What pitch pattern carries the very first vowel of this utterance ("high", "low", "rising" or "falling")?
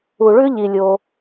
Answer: low